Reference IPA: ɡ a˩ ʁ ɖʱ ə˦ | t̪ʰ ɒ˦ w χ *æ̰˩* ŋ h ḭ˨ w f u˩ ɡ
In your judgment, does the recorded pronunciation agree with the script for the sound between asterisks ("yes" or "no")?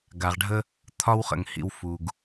no